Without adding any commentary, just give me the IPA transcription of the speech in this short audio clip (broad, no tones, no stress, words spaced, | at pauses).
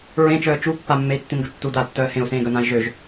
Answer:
ɹẽt͡ʃœː t͡ʃu pːamːei̯tːĩnɡə tːu datːœː hẽu̯sẽːɡœnãi̯ ʒøʒ